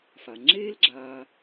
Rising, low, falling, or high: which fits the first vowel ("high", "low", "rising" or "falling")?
low